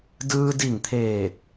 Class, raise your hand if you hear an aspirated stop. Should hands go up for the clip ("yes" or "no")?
yes